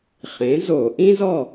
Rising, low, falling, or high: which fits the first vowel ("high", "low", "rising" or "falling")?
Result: rising